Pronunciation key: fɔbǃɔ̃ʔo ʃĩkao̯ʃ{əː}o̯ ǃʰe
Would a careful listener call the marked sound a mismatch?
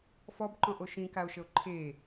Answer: yes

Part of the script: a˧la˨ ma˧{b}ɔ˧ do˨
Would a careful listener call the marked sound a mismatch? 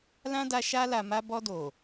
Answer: no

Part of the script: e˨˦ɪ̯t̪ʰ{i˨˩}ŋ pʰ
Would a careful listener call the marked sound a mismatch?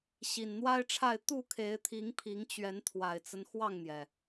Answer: yes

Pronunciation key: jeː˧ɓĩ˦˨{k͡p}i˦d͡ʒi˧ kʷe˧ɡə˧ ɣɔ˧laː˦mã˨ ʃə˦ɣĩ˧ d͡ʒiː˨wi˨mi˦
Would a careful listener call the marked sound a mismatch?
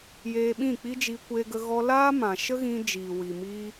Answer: no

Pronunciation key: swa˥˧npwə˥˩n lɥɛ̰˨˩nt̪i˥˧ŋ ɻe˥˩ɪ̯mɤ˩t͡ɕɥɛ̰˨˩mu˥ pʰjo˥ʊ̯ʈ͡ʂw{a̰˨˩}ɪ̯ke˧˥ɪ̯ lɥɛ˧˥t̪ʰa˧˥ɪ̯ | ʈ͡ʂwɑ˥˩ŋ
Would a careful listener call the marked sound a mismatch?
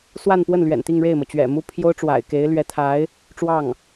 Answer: no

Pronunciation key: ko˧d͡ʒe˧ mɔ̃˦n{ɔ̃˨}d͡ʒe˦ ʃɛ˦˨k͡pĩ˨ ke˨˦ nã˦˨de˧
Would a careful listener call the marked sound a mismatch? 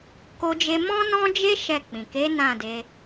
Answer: yes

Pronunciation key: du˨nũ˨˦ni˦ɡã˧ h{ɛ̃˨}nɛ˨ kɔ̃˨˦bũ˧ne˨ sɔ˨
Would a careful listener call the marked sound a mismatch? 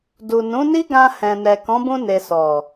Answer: no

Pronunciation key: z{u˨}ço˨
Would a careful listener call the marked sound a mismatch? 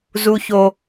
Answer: no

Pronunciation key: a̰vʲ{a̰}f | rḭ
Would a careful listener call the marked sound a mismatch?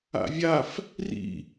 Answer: yes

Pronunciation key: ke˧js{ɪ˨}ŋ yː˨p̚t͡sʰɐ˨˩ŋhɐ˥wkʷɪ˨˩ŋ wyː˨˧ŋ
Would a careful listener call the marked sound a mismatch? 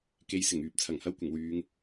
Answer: yes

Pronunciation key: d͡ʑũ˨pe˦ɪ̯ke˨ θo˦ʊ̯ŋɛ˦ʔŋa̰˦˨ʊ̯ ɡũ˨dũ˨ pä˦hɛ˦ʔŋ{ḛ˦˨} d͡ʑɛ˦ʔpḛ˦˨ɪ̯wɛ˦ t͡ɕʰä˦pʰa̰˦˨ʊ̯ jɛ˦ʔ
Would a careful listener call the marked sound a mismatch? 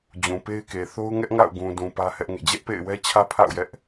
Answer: no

